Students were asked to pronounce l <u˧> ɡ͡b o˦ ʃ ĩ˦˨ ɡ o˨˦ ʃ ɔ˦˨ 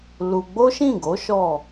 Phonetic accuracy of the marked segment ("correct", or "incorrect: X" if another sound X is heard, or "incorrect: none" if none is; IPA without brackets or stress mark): correct